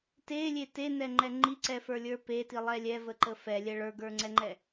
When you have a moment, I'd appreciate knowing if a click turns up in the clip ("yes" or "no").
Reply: yes